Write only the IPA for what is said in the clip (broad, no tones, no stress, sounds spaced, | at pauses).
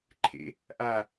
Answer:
ǃʰ ḛ | ʔ a